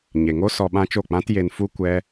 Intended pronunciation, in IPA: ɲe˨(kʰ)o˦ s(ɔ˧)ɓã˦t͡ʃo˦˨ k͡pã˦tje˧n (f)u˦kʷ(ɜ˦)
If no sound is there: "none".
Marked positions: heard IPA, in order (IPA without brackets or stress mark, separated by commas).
ŋ, ɔ˧, f, ɛ˦